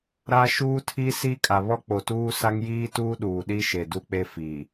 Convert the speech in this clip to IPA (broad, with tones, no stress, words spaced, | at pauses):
ɾa˦ ʃuː˦tʰi˦ si˦ kʼa˨βɔ˦k͡po˨tuː˦ sa˦ŋjiː˦tuː˦ ɗuː˨ɗi˦ʃe˨ du˦k͡pe˦ fi˨